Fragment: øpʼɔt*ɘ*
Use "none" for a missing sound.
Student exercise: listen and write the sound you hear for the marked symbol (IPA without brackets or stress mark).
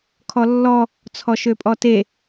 e